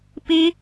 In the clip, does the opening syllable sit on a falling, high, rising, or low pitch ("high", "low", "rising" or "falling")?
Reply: high